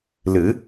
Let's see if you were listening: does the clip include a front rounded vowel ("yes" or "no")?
no